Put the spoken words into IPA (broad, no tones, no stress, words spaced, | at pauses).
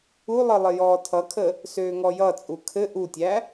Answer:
ulˠɘ lˠɘjɔːtʰʌkʰə | søːŋɔjʌt͡sʼu kʰɘ ʔutʲæ